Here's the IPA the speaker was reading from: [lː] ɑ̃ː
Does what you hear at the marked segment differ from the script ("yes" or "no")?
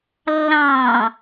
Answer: no